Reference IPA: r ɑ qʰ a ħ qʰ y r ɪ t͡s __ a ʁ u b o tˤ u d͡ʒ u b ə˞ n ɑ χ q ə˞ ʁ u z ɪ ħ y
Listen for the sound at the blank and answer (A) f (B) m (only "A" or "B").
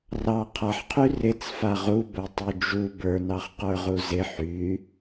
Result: A